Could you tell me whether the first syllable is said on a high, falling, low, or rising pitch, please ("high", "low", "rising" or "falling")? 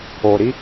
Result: low